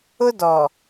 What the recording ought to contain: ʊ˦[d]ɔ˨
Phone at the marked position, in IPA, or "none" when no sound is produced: d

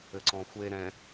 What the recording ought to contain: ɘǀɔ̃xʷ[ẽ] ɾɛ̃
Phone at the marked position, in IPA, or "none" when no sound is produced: e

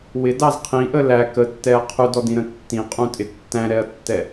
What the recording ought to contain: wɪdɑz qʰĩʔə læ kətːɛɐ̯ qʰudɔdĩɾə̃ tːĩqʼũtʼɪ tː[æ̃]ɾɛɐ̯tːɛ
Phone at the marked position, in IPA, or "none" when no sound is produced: æ̃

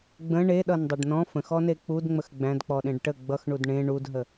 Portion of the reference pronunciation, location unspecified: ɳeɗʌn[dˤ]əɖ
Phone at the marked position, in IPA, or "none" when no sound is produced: dˤ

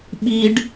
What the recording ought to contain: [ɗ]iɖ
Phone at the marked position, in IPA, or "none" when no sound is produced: ɓ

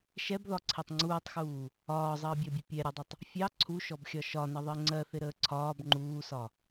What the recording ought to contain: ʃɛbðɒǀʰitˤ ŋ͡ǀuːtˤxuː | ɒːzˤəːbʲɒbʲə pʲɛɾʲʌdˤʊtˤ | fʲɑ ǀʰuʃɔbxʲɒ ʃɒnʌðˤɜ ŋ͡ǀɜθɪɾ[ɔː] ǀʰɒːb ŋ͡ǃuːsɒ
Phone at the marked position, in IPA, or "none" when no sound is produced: əː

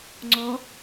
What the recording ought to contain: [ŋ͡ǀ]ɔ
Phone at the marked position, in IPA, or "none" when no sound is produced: ŋ͡ǀ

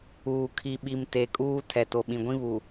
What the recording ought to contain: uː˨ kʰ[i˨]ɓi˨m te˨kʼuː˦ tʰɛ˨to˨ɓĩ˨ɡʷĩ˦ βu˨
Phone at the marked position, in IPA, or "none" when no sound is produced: i˨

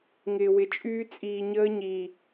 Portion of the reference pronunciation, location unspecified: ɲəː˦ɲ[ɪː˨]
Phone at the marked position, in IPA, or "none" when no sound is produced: iː˨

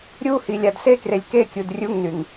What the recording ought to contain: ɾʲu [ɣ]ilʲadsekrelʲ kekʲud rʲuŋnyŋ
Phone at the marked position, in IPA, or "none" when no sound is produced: h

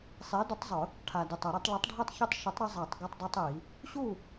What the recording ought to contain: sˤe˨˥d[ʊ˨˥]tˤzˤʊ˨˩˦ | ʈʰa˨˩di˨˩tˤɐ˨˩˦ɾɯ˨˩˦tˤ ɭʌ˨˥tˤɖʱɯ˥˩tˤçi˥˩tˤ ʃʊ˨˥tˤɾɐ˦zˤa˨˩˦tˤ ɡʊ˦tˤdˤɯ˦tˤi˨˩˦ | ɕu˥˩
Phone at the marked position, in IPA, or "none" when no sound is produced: ʊ˨˥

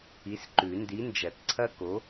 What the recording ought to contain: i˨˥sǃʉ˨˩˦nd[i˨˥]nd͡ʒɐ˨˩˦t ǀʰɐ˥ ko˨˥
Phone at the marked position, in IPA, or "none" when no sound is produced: i˨˥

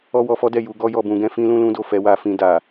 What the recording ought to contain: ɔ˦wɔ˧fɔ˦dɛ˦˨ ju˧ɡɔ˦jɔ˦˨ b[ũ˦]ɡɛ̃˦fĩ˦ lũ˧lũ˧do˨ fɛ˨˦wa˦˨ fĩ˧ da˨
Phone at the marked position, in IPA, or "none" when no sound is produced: ũ˧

